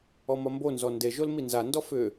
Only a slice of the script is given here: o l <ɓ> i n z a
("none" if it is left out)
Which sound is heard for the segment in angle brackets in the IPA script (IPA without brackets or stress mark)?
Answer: m